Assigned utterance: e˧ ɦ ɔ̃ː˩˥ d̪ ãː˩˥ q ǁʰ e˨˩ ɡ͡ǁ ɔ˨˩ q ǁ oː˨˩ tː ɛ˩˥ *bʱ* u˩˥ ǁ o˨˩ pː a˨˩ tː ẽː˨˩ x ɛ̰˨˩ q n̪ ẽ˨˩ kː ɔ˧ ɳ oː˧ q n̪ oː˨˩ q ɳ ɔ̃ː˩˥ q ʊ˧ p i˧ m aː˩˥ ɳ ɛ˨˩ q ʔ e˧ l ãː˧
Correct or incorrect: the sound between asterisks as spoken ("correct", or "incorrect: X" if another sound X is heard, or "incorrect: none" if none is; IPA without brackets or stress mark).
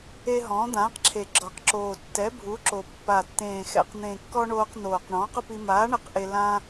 correct